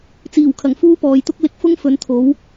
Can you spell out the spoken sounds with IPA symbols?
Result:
t͡siː˨˩wkʰɐ˨˩ŋ fuː˥pɔː˨jt̪ʊ˥k̚ lɪ˧k̚fʊ˥ŋ fɵ˨˥nt̪ʰo˨˥w

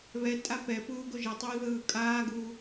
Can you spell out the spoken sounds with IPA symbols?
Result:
βɛtʼa pɛ puːɡoʒɛtˤɯː ðɯːkʼaːɡuː

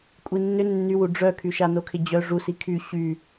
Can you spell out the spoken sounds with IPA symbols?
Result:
kʷʼinːʏ nːywu ɖ͡ʐœkʰy ʃanokʰɪd͡ʑœ ʐusi kʰy ɕy

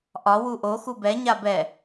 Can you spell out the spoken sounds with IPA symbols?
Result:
ʔɒ wuʔo xubɛ ɲabɛ

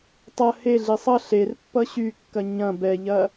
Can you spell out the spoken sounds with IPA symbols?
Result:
tˤɐ heɮi sˤʌ ɬer pːʌɕykːɐ ɲɐ̃ bɛʎɐ

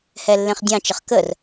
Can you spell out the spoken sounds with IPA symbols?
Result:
hɛlːẽχdʲɑ̃t͡ʃəχ kər

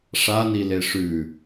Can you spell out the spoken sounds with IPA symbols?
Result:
ʂanile ʂʉ

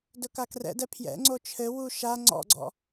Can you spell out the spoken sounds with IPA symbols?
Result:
dɵkakrɛ̰dɛ pʰjɛ̰ŋ͡ǀo t͡ʃʰɘwu ʃa ŋ͡ǀɔ̰ɡ͡ǀɔ̰

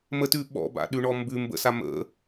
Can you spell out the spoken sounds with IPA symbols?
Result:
mətʉ ɓɔ̰ba̰ɗʉɳɔ mbʉ mbə̰sa mə̰

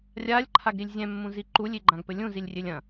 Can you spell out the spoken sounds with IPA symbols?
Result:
rʲalʲǃʰaɡɾilʲ zʲɛ̃mːũzi ǃulʲiɡ͡ǃãɡpɘ lʲũzilʲrʲelʲ ɐ̃

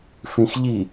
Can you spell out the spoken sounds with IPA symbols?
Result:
fĩxʎi

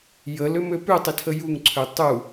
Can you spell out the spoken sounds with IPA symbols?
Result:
jəlømø pʉtˤitʰə juŋǀʰø tˤu

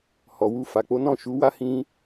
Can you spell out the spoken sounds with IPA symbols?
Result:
hɔ˨wu˧ fa˨k͡po˨˦nɔ̃˦˨ ʃu˨˦wa˦ hĩ˧

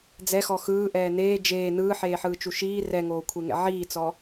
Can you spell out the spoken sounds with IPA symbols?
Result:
d͡zɛxɔ xɯːʔɛː neː d͡ʒeː nɯːħeːħɯːt͡ʃu ʃiː rɛŋoːkʷʰeŋɛ̰ ʕiːt͡sɔ

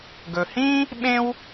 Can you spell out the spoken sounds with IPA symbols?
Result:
ɡɵ˩hĩ˥ | ɓẽ˥w

